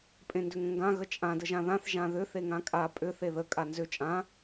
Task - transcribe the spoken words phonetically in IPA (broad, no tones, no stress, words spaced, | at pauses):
pʼẽndʏŋə̃ŋɡã ɣət͡ʃʼã dəʒãðãθ ʒãðʏ θeŋãkʼa pʼʏ θeðə kʼanzʏ t͡ʃʼã